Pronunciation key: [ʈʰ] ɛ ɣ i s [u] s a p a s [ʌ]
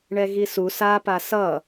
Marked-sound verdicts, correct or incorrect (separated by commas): incorrect, correct, correct